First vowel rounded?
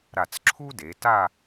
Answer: no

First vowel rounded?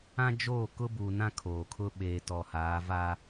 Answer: no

